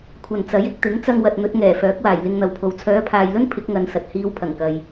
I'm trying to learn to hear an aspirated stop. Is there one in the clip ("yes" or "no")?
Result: yes